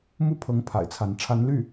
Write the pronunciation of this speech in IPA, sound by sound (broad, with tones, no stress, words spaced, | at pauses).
mu˥˩pʰɤ˧˥ŋ pʰa̰˨˩ɪ̯t͡sʰa˧˥n ʈ͡ʂʰa˧˥nly˥˩